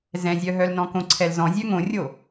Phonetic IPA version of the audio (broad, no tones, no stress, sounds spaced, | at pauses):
z ɛ̃ zʲ œ ɦ œ l n ɔ̃ k õ ǀʰ ɛ l z ɔ̃ zʲ œ ŋ õ rʲ o